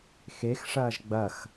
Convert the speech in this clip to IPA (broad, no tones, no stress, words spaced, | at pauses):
xexʂɐːʒ ɡ͡bɐx